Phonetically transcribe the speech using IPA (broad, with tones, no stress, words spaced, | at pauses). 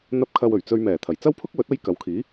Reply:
n̪ɐ˨p̚kʰɐ˨w ɵ˨˩ɥt͡sɵ˧ɥ mɛː˨˩t̪ʰɐ˨˩jt͡sɐ˥wpʰʊ˥k̚ wɵ˨˥t̚ɐ˥j kɐ˨˧wkʰiː˨˥